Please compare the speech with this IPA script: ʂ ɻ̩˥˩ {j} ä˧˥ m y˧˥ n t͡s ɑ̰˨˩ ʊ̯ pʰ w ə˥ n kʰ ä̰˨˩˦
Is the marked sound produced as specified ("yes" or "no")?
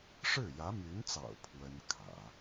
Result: yes